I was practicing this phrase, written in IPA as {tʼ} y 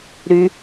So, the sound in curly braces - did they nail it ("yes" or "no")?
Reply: no